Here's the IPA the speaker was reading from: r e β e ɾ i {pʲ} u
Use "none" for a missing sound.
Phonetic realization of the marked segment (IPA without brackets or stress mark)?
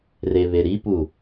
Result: p